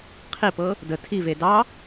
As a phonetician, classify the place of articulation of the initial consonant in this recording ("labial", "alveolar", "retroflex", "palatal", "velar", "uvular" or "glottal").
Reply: uvular